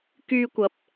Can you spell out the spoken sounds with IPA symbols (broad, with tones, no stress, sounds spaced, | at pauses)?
k yː˧ kʷ ɐ˨˥ p̚